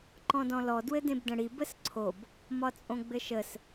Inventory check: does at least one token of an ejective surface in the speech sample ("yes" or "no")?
yes